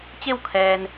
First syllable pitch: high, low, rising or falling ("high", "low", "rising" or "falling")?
falling